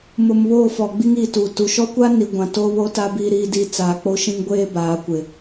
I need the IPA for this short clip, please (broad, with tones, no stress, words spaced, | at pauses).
mʊ˨m βoː˦˨fɔ˨ ɡ͡bi˦ŋiː˨tuː˨ tu˨ ʃɔ˦kʷa˦ni˨ ɡʷã˨ toː˦βo˦ta˦ biː˦ɾiː˦ di˦ t͡saː˨k͡po˦ʃĩ˦ŋɡʷeː˦ baː˨˦kʷɪ˨